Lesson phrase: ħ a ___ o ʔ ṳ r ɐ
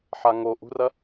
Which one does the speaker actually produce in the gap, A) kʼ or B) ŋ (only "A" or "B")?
B